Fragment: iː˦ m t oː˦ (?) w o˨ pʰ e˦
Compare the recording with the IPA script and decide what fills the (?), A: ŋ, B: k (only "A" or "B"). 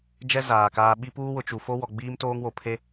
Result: A